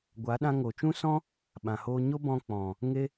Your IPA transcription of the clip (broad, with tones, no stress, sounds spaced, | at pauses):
ɡʷ a˨˦ ɗ ã˧ ŋ o˨ t͡ʃ ũ˦ s ɔ̃˦ | ɓ ã˨ h oː˧ ɲ o˦ b ɔ̃˧ k͡p ɔ̃˨ | ŋ e˦